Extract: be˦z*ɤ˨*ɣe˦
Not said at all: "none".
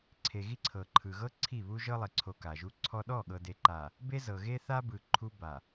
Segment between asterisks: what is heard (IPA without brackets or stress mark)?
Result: ɤ˨